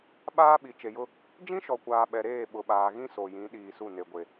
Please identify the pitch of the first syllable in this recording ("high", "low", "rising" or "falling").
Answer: high